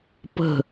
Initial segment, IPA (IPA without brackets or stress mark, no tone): p